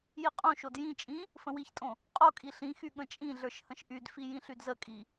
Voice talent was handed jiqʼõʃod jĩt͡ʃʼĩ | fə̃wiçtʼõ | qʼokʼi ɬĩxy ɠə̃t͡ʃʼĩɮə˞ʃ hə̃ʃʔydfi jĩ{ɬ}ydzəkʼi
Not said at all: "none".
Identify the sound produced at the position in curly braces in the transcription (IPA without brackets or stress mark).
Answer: ɬ